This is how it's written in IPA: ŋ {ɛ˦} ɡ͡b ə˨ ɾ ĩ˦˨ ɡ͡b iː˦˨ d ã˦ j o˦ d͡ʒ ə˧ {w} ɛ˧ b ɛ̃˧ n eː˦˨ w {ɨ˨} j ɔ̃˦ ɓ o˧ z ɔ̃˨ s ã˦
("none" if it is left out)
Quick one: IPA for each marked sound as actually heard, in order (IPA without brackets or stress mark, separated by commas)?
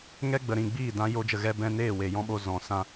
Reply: ɛ˦, ɣ, e˨